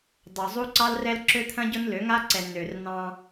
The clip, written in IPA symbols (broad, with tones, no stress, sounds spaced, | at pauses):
dˤ o˨ zˤ u˦ ǀ ɑ˦ l r ɛ˦ l ǁ ø˦ t̪ʰ ɐ̃˦ ɟ ʊ˦ n l ø˨˦ ŋ a˦ ǀ ɛ˨ n ø˨ r n ɑ̃˦